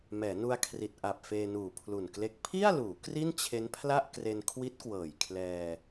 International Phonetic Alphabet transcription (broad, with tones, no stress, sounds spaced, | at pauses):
m ɛː˩˦ n u˧ a̯ kʰ r i˨˩ t̚ ʔ a˨˩ p̚ f eː˧ n uː˨˩ pʰ l u˨˩ n k l e˦˥ k̚ pʰ i˥˩ a̯ l uː˩˦ k r i˥˩ n t͡ɕʰ e˦˥ n pʰ l a˥˩ ʔ k r e˧ n kʰ w i˦˥ t̚ k w ɤː˨˩ j kʰ l ɛː˧